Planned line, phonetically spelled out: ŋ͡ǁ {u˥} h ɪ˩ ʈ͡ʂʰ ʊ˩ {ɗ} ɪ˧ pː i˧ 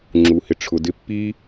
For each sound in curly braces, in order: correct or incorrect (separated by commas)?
incorrect, incorrect